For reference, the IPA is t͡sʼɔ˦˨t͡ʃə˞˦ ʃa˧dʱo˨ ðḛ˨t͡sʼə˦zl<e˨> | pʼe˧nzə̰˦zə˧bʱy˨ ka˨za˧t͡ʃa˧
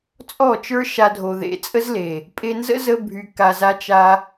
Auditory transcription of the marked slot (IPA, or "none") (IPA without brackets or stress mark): e˨